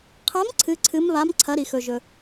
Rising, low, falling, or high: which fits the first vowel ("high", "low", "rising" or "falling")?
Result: rising